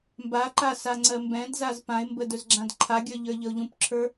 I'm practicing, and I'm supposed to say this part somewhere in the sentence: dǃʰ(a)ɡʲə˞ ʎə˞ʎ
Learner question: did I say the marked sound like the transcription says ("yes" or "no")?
yes